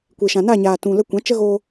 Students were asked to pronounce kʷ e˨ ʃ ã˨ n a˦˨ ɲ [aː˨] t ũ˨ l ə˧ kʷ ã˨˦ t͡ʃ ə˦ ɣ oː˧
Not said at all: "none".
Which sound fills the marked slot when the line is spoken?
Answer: aː˨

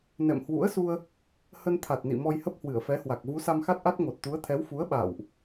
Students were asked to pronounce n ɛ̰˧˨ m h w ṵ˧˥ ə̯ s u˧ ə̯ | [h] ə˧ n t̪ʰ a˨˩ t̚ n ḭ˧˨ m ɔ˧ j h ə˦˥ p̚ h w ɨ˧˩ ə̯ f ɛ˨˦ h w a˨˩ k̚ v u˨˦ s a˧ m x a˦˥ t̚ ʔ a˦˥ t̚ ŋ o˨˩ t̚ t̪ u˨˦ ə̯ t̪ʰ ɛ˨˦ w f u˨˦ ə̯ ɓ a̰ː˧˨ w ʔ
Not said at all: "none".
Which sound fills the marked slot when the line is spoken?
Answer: h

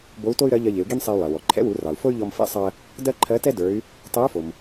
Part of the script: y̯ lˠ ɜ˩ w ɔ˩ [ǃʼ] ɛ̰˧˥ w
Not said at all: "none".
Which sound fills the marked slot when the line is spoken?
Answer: ǃʰ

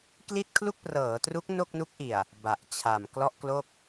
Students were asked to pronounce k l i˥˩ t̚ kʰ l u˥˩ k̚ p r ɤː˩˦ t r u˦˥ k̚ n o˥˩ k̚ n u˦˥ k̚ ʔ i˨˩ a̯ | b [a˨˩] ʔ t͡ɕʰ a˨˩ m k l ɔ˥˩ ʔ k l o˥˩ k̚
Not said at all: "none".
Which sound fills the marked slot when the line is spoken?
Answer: a˨˩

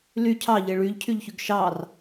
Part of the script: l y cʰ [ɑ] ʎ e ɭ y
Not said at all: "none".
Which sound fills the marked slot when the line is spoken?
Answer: ɑ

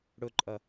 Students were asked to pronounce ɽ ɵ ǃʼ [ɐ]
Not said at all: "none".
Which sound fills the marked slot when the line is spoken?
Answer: ɐ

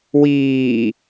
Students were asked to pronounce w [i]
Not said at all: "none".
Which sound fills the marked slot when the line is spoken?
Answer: iː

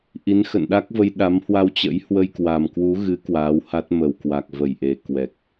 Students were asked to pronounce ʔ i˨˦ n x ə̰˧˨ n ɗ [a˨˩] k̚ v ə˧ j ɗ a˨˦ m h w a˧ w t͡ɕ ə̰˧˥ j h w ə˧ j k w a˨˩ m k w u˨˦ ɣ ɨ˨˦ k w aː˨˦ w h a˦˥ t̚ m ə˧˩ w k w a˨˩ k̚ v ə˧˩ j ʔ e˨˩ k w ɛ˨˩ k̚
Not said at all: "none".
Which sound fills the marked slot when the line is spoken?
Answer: a˦˥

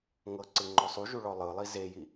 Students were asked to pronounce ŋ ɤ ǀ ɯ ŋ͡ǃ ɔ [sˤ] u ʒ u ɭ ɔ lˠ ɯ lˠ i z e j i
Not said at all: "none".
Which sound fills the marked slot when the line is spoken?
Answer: sˤ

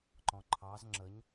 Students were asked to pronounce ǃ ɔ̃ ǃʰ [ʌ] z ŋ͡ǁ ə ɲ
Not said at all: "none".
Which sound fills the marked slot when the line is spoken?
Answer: ɑ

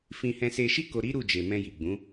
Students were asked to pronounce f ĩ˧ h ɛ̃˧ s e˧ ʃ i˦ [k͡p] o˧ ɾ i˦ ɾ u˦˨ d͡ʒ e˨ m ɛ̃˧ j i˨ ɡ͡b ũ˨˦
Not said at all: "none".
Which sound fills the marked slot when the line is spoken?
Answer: k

